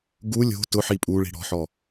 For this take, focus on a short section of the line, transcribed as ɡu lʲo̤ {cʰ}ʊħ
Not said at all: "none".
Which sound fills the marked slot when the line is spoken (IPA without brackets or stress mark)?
t